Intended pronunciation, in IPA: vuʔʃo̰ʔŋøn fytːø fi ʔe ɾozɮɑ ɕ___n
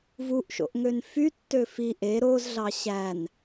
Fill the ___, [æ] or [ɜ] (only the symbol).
æ